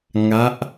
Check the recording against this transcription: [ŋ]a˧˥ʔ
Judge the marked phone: correct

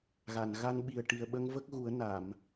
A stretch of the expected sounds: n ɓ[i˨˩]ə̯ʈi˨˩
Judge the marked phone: correct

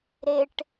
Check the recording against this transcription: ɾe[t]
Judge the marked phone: incorrect: ʈ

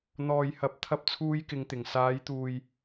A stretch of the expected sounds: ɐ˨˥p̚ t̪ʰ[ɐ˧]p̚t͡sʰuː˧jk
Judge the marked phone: correct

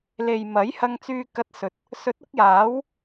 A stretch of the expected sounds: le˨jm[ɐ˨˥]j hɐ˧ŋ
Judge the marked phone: correct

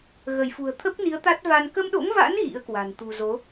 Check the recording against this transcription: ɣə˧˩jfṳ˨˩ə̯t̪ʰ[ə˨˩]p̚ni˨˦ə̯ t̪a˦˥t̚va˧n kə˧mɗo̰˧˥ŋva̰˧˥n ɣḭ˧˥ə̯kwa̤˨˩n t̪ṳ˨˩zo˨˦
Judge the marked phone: incorrect: ə˦˥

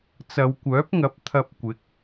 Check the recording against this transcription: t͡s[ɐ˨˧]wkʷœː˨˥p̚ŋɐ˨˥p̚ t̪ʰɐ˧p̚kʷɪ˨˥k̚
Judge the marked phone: correct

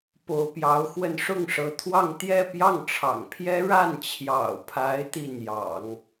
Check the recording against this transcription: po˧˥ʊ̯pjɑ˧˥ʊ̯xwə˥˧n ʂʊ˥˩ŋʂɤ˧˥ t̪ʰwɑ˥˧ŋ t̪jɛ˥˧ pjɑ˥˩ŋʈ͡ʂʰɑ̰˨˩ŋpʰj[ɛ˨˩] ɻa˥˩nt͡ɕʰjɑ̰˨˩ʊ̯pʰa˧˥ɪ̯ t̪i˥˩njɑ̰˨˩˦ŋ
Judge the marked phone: incorrect: ɛ˥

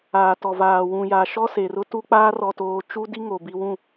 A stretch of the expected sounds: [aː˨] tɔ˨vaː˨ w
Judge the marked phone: correct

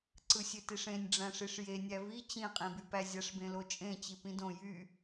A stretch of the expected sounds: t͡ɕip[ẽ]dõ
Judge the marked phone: incorrect: ĩ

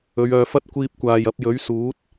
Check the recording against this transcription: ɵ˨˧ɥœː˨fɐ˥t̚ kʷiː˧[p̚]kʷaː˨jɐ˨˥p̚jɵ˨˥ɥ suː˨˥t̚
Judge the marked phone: correct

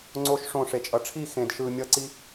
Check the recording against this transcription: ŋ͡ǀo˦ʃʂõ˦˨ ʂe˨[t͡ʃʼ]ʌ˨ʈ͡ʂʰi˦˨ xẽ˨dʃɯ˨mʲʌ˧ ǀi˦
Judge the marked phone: correct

